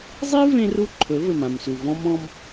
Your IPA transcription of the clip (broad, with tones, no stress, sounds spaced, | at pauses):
zˤ i˦ v ẽ˦ r u˦ ǃʰ ɵ˨˦ v ɘ˨ m ã˨ m s u˨ v ɔ̃˧ m ɔ̃˧ m